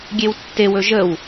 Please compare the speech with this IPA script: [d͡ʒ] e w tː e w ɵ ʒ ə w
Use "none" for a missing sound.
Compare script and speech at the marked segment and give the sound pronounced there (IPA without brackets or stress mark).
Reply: ɡʲ